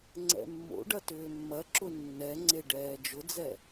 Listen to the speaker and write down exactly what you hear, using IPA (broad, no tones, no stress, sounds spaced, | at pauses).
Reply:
ŋ͡ǀ ɛ̰ mː o̰ ɖ ɐ t ʏː mː ɐ ǁ ʊ nː ɛ ŋ͡ǀ e ɖ ɛː d͡ʒ ʊ d͡z ɛ